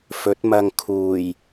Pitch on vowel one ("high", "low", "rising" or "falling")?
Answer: rising